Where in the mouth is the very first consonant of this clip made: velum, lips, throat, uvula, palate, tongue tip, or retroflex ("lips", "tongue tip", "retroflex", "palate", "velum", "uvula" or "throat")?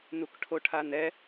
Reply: tongue tip